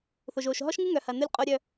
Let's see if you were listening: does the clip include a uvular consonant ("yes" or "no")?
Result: yes